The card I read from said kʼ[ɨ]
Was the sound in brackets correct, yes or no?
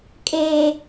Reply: no